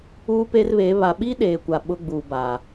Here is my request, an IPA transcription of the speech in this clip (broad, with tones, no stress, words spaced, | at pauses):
uː˦pe˦rβeː˨˦ βa˨ɓi˦ɗeː˨ kʷa˨ ɓʊ˦ɡ͡bu˨ba˨